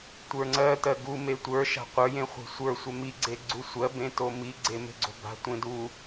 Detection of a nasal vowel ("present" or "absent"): present